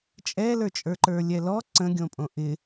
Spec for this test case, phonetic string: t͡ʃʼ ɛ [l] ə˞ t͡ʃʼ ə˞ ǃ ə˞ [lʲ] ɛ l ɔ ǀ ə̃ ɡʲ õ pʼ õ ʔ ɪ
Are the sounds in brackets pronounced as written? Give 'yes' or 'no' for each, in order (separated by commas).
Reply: yes, yes